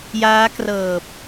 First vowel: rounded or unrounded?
unrounded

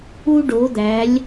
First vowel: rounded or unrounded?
rounded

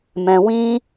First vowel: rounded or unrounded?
unrounded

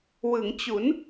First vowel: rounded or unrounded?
unrounded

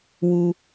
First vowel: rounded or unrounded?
rounded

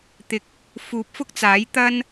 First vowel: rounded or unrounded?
unrounded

